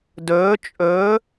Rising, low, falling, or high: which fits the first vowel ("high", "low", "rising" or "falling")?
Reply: rising